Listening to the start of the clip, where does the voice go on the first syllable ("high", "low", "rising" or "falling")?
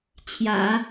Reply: low